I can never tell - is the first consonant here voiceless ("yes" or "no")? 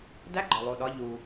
no